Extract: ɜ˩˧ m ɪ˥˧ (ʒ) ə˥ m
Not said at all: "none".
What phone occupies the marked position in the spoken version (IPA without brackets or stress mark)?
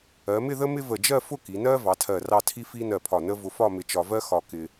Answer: ð